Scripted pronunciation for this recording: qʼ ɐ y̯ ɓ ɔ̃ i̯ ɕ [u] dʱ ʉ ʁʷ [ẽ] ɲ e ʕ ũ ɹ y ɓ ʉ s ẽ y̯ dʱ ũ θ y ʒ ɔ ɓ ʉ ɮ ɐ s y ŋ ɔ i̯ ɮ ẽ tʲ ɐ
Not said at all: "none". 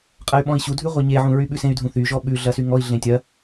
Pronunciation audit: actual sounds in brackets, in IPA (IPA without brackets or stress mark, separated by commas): u, e